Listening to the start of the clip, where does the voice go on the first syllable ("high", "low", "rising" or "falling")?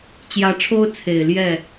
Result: rising